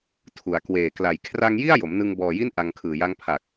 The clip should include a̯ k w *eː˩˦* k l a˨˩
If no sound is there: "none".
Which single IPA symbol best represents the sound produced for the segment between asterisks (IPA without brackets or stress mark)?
eː˨˩